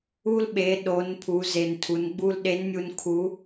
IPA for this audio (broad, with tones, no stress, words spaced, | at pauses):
u˧lɓe˩˧ ɗo˩˧n pʰu˩˧ze˩ntʰu˩˧nɡ͡bu˧l ɗe˧˥nmʲu˧nkʰu˧˥